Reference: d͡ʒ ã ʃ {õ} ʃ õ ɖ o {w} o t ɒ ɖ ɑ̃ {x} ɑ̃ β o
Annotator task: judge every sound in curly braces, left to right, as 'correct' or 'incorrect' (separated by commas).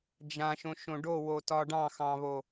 correct, correct, correct